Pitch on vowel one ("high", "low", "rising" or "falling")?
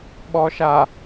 low